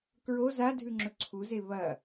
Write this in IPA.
k ɹ o z a dʱ ʉ ŋ͡ǁ ɵ ǀʰ u z e β ɐ

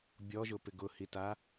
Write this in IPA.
bʲ ɔ ʒ ʊ p ɪ ɡ ʊ h i t a

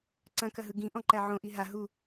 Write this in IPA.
ǀ ɐ̃ k ɐ ɦ ɯ ɡ ĩ ʔ ɔ̃ ǃ æ ʕ õ ʔ i ɦ a ɦ u

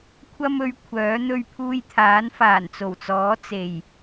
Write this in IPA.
kʷʰ ɐ˧ m ɵ˨˧ ɥ kʷʰ œː˨˥ n̪ ɵ˧ ɥ pʰ uː˧ j t̪ʰ aː˨˥ n f aː˨˩ n t͡s o˨˩ w t͡s ɔː˨˥ t͡s e˨˩ j

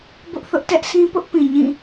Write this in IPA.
b ʊ˦ ʔ θ ʊ˦ ʔ t ɛ˦ ʔ s ĩ˦ p ʊ˦ ʔ p ĩ˨ ɲ ĩ˦˨

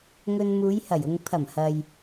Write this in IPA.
ŋ ɵ˧ n m uː˨˧ j h ɐ˨˩ j ʊ˨ ŋ pʰ ɐ˨˩ m h ɐ˨ j

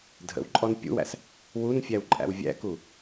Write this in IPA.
dʱ ə̰ w ǃʼ ɔ n pʲ ṵ w æ̰ s | w u n fʲ æ w ǃʼ æ̰ w vʲ æ̰ k u

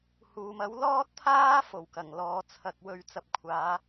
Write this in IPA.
h uː˨ m ɐ˨˥ w l ɔː˥ t̚ t̪ʰ aː˥ f o˨˩ w k ɐ˨˩ ŋ l ɔː˨ t͡sʰ ɐ˨ k̚ w ɵ˧ ɥ t͡s ɐ˨ p̚ kʷʰ aː˨˧

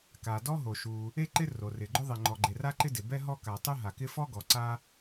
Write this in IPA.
k a˩ d ɔ˥ ɦ o˩ ʃ u˩ | e˥ ǃ ɪ˥ r o˩ r ɪ˩ ɡ͡ǃ ʊ˥ ðˤ ɪ˩ ŋ͡ǃ ɔ˩ ɡ͡ǃ e˩ r a˥ ǃ ɪ˥ d ɪ˩ b ɛ˥ ɦ ɔ˥ k a˩ tˤ u˥ ɦ a˩ k ɪ˥ f ɔ˥ ɡ ɔ˩ ǀ a˥

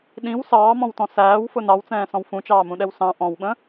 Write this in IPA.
ɗ ĩ w s ɑː m ɔ̃ w t ɔ̃ s æː w f ʊ n ɑ w t͡s ɛ̃ː s ɔ̃ w f ũ t͡ʃ ɑː m ũ ɗ ɛ w s ɑ̃ ʔ ɔ̃ w ɓ ə̃

